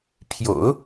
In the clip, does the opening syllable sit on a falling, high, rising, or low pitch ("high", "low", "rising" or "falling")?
low